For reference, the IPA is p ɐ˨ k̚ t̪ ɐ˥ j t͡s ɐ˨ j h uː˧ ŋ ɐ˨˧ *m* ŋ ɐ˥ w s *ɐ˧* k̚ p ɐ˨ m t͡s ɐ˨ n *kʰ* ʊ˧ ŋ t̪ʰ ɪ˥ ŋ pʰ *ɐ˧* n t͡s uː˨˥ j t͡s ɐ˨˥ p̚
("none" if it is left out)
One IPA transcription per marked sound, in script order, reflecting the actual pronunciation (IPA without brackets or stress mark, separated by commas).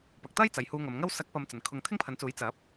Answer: m, ɐ˨˥, kʰ, ɐ˨˥